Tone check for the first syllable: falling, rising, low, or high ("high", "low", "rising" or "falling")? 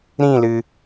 falling